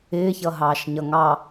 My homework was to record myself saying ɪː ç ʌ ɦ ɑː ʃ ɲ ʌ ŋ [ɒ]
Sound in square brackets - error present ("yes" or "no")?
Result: yes